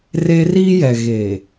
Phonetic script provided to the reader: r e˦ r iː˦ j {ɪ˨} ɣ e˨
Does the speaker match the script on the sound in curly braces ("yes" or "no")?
no